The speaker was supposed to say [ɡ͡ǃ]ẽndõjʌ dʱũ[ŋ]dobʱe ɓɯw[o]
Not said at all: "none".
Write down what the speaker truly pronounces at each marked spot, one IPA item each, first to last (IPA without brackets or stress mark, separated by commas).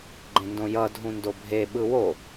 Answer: ɡ͡ǃ, n, o